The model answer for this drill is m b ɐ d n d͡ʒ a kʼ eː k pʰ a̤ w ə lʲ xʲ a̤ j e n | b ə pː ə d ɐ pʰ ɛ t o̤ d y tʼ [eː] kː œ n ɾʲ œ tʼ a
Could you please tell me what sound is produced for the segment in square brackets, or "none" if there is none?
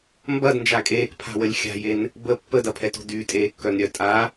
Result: eː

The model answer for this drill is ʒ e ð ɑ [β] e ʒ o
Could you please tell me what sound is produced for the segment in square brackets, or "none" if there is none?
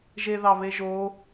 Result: β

